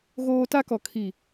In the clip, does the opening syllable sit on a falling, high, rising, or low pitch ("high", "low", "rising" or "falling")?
high